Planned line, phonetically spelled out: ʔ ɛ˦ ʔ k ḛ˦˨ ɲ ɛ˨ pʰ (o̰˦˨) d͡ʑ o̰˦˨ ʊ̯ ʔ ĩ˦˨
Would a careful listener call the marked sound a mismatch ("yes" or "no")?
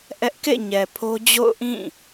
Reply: yes